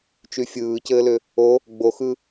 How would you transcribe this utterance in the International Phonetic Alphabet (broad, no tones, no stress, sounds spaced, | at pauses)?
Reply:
t͡ʃ y fʲ ɯː c ɘː l ʏ | o | ɡ͡b o x ɯ